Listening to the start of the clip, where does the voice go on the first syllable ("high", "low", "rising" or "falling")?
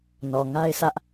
low